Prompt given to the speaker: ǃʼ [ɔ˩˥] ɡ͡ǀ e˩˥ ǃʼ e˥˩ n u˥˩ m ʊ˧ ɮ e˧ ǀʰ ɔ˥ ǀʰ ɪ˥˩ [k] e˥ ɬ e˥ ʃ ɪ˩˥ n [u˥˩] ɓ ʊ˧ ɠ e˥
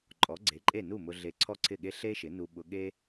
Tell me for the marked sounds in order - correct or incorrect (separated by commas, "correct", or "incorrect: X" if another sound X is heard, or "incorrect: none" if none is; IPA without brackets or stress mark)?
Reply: correct, incorrect: ɠ, incorrect: u˧